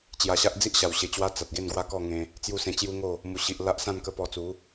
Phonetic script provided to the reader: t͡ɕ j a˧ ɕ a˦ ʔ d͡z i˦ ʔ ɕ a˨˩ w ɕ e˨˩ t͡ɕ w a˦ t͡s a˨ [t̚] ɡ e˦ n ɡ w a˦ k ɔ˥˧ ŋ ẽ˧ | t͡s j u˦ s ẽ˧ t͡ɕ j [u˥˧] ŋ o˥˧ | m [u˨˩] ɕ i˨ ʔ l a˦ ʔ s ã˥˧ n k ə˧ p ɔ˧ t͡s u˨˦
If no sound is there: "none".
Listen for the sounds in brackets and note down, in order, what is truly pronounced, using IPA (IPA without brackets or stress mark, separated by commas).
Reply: t̚, u˦, u˨˩